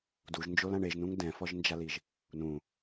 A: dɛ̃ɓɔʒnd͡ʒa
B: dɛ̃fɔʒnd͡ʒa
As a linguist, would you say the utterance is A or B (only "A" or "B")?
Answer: B